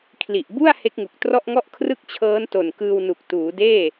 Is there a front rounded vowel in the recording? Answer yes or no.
no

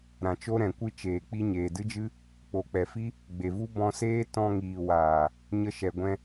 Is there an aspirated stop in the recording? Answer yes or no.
no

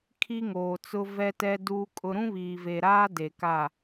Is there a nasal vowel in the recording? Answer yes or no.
yes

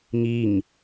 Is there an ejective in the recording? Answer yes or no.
no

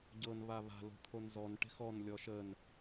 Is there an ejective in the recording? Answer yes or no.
no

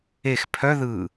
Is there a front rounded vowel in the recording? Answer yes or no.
yes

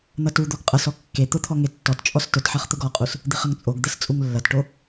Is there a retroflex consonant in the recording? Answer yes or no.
yes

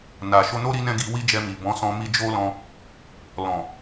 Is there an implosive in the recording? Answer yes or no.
no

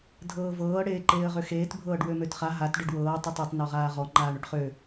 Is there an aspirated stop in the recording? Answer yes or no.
no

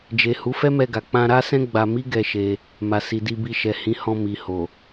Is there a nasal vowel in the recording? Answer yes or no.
yes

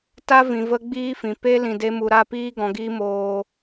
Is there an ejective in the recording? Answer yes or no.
no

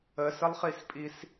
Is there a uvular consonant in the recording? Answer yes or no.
yes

